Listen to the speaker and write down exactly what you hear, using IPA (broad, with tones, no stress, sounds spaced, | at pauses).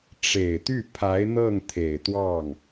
ʈ͡ʂ e˨˩ ɪ̯ t̪ y˥˩ pʰ a˧˥ ɪ̯ n̪ ɤ˥˩ ŋ t̪ʰ e˨˩ ɪ̯ t̪ w ɑ˥˩ ŋ